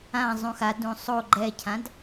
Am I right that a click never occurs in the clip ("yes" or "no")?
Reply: no